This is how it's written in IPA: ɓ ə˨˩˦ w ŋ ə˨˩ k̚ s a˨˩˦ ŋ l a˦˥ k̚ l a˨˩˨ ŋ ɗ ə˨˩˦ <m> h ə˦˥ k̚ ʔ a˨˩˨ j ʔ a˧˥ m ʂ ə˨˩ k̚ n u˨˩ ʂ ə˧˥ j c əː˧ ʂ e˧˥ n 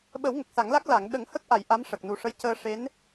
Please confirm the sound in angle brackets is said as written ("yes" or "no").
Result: no